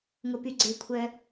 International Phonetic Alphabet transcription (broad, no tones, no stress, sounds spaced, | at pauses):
ŋ ʊ p y ɡ͡ǀ ɪ kʷʰ œ